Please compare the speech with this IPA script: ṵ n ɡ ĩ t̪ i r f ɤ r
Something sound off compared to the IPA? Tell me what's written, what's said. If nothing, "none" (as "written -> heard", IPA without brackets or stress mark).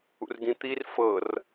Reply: n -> r